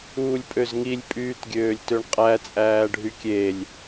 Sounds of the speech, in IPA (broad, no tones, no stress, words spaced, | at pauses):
uːlʲpʼøzŋilʲ pʼyːtɡʲøːlʲtøɳqʼæ t͡sʼæːɖʱykʲelʲ